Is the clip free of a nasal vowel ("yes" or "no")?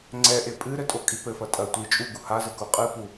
yes